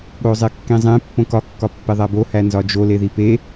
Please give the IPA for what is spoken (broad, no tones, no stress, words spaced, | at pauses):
ɠozˤekːĩzˤẽ pːõkɒ kːɒpːeðˤæbo hænzɒd͡ʒo leðipe